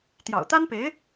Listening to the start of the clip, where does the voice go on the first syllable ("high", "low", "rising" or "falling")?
low